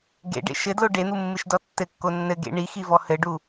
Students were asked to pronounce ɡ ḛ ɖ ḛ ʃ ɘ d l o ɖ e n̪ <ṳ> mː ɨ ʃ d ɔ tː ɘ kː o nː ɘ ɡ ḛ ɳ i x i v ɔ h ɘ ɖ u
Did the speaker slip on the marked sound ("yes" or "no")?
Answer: yes